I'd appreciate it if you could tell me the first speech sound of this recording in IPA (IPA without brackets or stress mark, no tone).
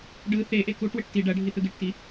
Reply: ɖ